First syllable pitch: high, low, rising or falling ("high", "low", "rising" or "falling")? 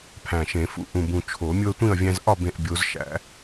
low